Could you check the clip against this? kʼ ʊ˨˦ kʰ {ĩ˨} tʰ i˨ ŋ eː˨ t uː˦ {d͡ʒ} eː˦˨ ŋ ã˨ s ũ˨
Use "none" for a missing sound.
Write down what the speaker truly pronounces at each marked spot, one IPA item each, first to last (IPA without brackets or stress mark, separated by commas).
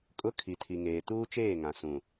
i˨, t͡ʃ